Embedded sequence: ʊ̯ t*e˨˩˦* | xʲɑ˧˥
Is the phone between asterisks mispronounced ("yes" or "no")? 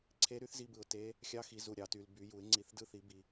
yes